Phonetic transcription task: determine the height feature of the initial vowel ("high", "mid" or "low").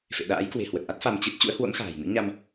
mid